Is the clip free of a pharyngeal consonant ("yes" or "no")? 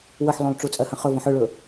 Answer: no